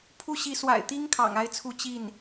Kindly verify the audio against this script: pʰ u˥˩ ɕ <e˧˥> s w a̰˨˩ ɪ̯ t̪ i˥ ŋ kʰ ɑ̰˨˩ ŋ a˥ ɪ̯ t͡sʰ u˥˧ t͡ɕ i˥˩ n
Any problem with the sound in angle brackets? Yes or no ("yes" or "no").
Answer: yes